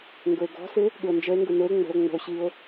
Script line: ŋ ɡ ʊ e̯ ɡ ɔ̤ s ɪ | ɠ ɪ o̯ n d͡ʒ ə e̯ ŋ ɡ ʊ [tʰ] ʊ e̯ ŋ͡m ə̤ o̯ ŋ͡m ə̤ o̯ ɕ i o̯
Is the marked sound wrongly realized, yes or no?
yes